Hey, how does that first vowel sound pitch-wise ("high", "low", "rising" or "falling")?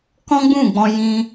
high